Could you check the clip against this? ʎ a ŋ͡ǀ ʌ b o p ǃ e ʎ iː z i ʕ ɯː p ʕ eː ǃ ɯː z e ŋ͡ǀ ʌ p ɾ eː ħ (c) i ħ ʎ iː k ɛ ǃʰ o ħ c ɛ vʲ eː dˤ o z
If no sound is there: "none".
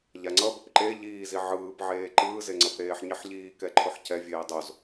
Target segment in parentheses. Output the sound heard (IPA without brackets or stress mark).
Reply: ɲ